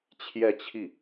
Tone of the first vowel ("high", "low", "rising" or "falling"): falling